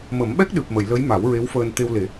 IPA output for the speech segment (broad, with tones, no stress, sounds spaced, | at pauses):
m ə˨˩˦ m ɓ ɛ˦˥ k̚ ɗ ɨ˨˩ p̚ m ə˨˩˨ j l ə˧˥ j m a˨˩˦ w ɹ e˧˥ w f əː˧ n t̪ e˧ w l e˨˩˦